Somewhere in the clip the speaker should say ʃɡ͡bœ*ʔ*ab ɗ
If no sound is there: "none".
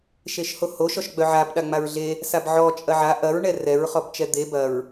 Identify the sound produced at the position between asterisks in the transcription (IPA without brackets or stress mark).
ʕ